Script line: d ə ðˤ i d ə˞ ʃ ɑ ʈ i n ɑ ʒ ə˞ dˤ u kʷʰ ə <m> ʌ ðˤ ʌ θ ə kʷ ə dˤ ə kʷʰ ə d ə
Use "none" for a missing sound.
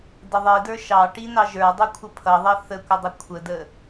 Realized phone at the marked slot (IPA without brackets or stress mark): pʰ